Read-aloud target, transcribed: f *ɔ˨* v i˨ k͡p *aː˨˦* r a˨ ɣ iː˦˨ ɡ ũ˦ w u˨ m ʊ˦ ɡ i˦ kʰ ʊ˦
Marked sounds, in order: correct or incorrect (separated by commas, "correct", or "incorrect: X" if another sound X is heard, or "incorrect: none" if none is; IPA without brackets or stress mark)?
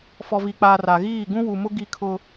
correct, incorrect: aː˨